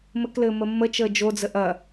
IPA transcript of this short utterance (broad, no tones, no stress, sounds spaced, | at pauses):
m ɘ k l ɘː m ə mː ə t͡ʃ əː d͡ʒ o d͡z ə ʔ ɐ